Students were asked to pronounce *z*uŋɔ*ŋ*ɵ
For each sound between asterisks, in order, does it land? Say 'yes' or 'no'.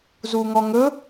yes, yes

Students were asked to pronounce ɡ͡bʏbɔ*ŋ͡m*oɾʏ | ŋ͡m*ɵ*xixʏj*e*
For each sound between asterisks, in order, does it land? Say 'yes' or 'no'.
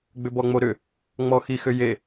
yes, no, yes

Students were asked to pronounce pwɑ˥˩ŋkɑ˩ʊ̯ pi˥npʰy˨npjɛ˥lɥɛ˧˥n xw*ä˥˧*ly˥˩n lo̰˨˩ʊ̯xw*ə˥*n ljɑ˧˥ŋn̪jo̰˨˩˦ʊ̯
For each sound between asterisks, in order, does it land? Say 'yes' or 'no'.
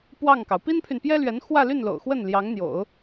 yes, no

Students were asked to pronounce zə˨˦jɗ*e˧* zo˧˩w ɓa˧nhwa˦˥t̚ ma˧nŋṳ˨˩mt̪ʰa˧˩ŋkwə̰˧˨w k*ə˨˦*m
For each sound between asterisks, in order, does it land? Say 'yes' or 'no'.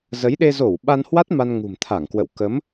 yes, yes

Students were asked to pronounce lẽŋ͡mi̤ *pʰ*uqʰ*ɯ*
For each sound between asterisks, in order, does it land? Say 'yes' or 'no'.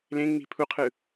yes, yes

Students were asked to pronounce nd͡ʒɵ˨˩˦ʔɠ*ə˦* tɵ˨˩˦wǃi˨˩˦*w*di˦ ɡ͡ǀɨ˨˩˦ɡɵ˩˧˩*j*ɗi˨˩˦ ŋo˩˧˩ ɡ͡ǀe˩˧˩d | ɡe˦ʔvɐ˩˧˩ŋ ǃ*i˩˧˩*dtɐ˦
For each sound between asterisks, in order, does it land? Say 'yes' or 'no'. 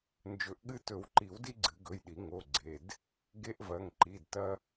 no, yes, yes, yes

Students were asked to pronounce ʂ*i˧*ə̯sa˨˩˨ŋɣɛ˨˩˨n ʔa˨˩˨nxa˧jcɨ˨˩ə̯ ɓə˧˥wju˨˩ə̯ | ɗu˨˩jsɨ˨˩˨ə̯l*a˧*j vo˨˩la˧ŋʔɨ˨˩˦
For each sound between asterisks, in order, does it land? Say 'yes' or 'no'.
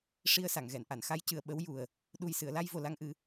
yes, yes

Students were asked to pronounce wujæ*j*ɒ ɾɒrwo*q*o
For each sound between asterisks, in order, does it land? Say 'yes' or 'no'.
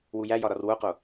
yes, yes

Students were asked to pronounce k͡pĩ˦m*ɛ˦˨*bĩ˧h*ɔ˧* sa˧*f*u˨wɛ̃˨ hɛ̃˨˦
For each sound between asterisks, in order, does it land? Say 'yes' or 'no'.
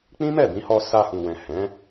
yes, yes, no

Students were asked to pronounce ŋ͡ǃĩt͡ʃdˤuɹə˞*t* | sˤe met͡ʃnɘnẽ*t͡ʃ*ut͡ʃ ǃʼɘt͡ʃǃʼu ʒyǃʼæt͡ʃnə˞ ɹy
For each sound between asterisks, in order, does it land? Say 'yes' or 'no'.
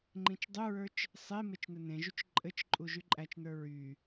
no, no

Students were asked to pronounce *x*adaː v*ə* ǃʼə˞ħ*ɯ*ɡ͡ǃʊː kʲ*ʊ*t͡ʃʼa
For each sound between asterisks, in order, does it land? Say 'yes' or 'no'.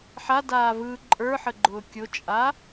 no, no, no, yes

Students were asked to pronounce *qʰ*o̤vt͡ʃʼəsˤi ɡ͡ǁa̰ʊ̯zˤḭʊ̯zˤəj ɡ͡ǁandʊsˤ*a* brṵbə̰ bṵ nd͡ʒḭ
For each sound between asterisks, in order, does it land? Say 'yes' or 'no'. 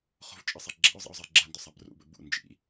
no, yes

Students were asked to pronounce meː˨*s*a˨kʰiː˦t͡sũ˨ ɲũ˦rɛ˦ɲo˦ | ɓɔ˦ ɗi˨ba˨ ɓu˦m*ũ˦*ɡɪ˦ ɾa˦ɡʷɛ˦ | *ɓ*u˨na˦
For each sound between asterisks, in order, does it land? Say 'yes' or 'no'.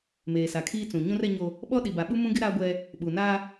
yes, yes, yes

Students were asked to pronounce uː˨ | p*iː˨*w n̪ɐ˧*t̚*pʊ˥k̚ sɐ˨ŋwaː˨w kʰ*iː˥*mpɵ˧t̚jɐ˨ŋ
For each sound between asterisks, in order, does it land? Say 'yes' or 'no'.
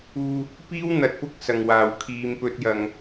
no, yes, no

